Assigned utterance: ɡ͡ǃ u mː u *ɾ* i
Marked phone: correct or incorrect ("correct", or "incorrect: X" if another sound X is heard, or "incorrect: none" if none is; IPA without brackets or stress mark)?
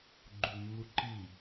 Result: incorrect: ǃ